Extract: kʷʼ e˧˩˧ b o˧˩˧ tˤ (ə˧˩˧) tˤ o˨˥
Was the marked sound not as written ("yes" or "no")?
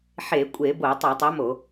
no